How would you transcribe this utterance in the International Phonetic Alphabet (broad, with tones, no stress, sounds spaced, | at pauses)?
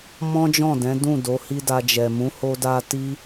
m ɔ̃˦ d͡ʒ ɔ̃˦˨ d ɛ̃˨˦ d ũ˦˨ d o˨˦ h i˦ d a˧ d͡ʒ ɛ˨ m ũ˨˦ h o˧ d a˧ t i˦